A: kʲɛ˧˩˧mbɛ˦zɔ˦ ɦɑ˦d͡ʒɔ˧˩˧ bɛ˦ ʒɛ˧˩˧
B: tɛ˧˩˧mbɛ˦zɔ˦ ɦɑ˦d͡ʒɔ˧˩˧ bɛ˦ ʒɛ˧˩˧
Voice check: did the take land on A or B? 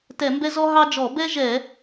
B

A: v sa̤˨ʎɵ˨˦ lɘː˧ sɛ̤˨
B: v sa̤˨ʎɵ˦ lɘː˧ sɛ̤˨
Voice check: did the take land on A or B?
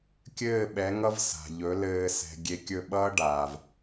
A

